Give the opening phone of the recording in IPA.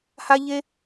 h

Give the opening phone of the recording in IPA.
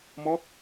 m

